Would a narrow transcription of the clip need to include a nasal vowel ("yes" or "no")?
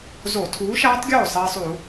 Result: no